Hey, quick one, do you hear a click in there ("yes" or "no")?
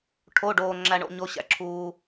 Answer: yes